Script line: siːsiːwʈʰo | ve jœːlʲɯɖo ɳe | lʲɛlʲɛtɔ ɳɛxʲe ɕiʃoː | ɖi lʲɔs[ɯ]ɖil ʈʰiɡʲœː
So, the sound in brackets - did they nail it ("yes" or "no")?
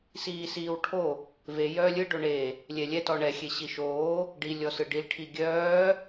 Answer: yes